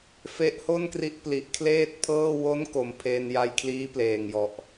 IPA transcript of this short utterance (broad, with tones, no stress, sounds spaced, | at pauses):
f e˦˥ ʔ h o˥˩ n k r i˦˥ ʔ p l i˨˩ ʔ kʰ l eː˥˩ t̚ pʰ ɤː˥˩ w o˦˥ n k o˨˩ m pʰ e˧ n j a˧ j kʰ l iː˦˥ p l eː˨˩ ŋ j ɔ˨˩ ʔ